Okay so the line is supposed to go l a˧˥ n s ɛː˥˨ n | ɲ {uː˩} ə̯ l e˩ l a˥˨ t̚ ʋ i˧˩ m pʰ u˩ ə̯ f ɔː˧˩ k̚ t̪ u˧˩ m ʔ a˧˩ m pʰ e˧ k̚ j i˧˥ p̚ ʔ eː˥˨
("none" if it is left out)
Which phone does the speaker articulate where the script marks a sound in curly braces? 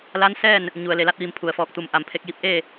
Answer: u˩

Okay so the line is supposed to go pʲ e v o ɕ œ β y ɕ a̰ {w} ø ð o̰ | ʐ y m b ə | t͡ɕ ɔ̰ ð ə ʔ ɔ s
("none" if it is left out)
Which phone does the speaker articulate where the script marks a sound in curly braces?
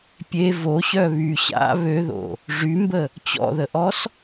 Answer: β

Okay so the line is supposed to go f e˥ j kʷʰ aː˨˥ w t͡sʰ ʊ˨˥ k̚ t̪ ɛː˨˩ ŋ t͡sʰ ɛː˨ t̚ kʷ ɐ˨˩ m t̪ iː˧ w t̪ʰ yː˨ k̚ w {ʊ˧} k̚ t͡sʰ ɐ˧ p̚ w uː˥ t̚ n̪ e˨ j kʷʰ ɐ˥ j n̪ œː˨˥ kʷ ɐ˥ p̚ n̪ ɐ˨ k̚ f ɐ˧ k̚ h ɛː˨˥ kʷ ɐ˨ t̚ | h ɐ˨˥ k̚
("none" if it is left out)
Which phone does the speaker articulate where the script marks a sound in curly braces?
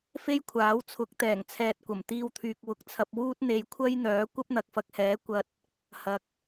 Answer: ʊ˧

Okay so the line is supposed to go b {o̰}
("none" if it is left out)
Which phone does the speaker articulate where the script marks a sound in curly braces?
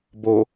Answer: o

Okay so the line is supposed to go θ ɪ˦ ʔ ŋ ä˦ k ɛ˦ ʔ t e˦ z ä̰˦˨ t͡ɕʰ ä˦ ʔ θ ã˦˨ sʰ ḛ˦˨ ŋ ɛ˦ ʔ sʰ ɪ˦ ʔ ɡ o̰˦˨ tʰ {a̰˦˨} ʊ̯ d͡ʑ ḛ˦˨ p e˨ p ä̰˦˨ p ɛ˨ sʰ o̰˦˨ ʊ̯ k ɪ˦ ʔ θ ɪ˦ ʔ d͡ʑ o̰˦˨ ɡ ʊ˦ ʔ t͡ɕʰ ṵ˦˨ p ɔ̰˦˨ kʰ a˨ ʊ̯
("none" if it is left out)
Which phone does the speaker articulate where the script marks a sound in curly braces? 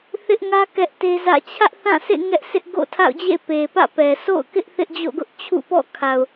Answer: a̰˦˨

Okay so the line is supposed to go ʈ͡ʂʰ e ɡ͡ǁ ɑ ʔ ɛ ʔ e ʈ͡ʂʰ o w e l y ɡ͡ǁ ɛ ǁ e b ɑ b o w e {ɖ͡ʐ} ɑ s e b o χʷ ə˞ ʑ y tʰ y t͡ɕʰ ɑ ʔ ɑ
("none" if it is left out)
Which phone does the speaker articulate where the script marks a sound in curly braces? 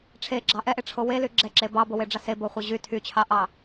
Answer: ɖ͡ʐ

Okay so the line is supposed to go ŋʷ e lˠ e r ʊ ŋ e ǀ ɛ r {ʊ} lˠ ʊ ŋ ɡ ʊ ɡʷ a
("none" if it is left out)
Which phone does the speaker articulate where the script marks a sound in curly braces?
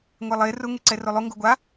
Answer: ʊ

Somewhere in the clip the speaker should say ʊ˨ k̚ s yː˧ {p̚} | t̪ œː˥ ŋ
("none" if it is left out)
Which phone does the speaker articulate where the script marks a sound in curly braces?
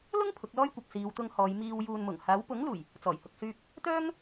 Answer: p̚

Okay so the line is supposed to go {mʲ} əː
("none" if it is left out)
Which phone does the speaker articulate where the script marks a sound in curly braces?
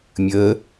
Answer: mʲ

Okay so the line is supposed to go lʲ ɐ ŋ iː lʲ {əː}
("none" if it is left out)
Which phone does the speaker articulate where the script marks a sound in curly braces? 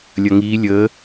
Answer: əː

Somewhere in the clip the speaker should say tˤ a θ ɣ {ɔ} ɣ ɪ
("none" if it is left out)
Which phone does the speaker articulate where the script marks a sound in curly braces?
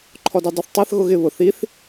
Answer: ʊ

